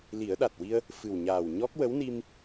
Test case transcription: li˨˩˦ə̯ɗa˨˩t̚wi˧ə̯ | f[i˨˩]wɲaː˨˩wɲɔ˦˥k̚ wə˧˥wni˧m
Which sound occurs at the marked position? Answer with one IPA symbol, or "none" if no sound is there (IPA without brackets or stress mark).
ɨ˨˩